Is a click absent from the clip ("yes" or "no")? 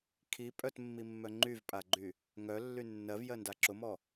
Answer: no